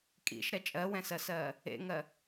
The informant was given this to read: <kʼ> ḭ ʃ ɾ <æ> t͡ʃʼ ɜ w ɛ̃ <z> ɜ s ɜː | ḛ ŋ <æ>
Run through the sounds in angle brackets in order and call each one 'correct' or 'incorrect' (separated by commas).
correct, incorrect, incorrect, incorrect